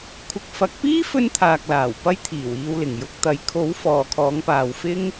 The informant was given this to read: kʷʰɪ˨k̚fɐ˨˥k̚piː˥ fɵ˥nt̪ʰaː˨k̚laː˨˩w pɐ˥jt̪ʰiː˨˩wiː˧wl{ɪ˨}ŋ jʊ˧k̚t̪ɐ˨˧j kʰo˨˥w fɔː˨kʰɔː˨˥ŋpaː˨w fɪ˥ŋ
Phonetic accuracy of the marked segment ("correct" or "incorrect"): incorrect